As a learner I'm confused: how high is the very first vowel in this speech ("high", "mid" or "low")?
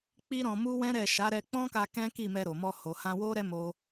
high